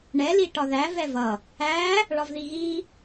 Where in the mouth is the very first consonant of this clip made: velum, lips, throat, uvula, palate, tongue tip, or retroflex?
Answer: retroflex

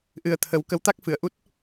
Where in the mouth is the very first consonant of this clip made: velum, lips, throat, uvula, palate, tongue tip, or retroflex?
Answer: throat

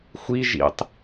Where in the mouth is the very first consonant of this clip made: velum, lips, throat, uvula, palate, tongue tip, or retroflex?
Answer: velum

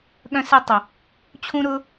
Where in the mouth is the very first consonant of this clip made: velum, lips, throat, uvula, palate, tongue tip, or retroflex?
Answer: velum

